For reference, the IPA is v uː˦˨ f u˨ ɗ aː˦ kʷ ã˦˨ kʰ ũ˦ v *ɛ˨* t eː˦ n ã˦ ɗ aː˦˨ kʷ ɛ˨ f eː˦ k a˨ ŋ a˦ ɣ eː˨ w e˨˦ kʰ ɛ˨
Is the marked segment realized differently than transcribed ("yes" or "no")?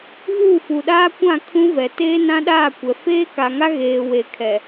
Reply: no